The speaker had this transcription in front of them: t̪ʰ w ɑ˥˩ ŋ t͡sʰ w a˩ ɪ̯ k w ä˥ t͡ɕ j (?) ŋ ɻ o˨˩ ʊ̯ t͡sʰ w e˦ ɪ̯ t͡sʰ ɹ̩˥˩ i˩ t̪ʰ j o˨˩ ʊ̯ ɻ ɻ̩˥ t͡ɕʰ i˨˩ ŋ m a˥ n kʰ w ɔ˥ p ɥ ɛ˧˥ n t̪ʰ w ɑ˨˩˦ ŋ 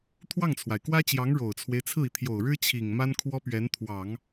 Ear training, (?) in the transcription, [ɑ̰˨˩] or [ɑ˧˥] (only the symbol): ɑ˧˥